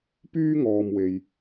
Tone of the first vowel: high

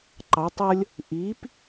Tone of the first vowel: rising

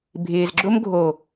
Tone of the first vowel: low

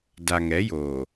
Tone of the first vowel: low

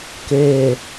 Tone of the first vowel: low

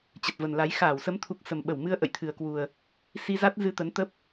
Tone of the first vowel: low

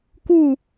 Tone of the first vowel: falling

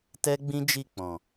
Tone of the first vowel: high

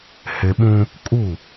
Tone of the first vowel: low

